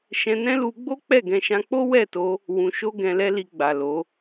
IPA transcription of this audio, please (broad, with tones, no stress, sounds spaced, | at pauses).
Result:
ʃ ɛ̃˧ n ɛ̃˦ l u˧ ɡ͡b o˦ k͡p ɛ˦˨ ɡ ɛ̃˧ ʃ ã˧ k͡p o˦ w ɛ˦˨ t o˧ | w ũ˧ ʃ o˦ ɡ ɛ̃˧ l ɛ˦ l i˧ ɡ͡b a˨ l o˨˦